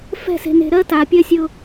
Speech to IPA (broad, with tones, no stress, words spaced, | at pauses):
fɛ̤˦˨se̤˨ne̤˨ɾɜ˦ ta˨pʲɜ˦sʲʊ˦